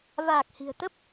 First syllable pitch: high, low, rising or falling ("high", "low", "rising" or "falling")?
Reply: low